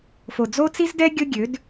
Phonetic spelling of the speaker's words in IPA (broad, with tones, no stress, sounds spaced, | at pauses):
f o˨ d͡z o˦ t͡s i˦ z d ɛ˦ ɡʲ ʊ˦ ɡʲ ø˨˦ d